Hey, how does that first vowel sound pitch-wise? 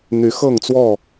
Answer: rising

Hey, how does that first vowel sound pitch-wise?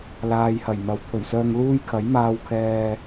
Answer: low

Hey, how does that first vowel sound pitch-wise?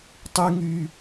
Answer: high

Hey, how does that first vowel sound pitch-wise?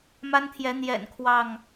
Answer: high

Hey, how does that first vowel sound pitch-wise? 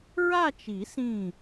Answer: falling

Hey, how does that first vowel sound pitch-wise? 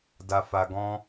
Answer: low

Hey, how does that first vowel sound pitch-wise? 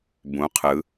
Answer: rising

